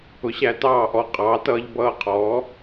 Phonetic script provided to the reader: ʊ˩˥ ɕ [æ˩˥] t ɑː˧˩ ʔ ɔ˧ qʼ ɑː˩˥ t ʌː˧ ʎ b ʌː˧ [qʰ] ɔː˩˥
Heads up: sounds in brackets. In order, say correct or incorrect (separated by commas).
correct, correct